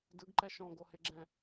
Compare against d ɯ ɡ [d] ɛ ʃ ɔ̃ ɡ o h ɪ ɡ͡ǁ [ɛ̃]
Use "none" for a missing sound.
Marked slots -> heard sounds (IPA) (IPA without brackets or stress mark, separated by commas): ǃ, ɛ̃